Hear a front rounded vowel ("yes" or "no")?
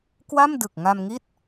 no